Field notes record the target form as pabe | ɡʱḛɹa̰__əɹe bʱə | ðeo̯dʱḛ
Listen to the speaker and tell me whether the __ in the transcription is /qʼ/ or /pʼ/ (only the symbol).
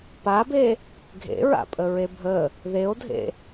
pʼ